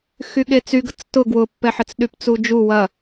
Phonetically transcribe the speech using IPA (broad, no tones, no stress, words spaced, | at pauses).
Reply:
xyɠet͡syɡət͡s tʊ ɡwʊpːɛħət͡s ɗypt͡sud͡ʒu wɐ